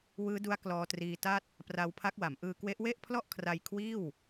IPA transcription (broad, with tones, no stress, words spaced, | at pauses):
wɯː˦˥du˦˥a̯ klɔː˧triː˧ta˥˩t̚ | pra˧wpʰa˦˥k̚ wa˩˦mʔɯː˧kwe˦˥ʔ we˥˩ʔpʰlɔ˥˩ʔ kʰra˧jkʰwiː˥˩w